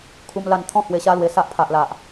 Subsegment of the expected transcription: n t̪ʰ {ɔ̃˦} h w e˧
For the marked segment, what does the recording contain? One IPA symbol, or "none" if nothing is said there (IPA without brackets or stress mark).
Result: ɔ̃˥˧